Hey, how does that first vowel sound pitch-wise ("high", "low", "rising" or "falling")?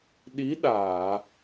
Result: rising